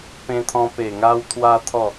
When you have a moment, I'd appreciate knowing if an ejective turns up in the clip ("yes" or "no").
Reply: no